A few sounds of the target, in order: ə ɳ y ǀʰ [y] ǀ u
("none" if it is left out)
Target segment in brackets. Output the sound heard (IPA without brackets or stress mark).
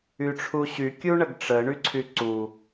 y